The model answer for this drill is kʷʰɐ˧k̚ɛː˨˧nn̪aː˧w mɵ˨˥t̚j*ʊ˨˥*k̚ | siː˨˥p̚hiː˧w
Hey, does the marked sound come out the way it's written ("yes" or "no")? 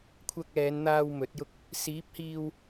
no